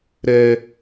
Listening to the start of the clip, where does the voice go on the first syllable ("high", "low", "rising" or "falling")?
high